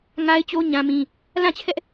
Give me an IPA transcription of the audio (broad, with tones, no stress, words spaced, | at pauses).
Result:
ŋa˦ɪ̯t͡ɕo˦ ɲã˦mĩ˦ | lã˦˨t͡ɕʰɛ˦ʔ